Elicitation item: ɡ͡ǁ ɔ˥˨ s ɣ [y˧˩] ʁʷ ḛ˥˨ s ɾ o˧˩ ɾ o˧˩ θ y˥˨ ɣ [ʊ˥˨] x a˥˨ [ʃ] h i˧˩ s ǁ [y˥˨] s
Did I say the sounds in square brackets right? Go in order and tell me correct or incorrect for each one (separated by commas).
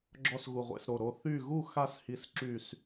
incorrect, incorrect, incorrect, incorrect